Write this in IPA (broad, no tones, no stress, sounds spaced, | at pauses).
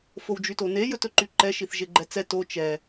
f o w d͡ʒ y t o n e j ɵ t ɵ ǃ y ǃ ɛ ʃ i θ ʒ e ɡ͡ǃ ɛ t͡s ɛ t o t͡ʃ ɛ